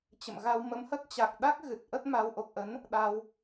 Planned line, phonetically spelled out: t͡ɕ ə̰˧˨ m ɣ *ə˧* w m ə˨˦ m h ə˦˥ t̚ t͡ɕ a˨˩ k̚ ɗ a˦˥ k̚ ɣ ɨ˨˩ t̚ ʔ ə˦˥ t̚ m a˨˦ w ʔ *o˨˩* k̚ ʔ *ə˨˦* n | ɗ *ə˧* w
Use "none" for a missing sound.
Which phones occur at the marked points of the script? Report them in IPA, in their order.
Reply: a˧, o˨˩, ə˨˦, a˧

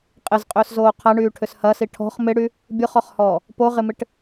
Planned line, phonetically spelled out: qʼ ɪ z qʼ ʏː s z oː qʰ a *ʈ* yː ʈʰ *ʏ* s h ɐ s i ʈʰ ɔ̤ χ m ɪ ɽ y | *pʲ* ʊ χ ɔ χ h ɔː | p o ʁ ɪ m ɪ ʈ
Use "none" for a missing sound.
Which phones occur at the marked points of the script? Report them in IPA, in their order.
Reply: ɳ, ʏ, bʲ

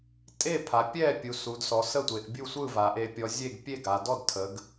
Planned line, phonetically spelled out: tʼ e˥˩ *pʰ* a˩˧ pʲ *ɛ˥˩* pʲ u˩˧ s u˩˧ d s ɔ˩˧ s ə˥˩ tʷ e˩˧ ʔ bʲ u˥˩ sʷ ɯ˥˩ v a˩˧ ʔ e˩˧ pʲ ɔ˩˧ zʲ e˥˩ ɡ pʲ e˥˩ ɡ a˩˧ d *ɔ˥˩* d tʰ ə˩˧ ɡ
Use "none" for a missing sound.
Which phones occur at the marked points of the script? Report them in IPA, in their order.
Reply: pʰ, ɛ˥˩, ɔ˥˩

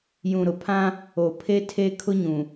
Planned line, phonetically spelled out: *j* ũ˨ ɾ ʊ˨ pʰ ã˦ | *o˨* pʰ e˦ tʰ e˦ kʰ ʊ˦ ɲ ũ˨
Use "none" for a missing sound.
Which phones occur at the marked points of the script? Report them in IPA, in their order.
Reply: j, o˨

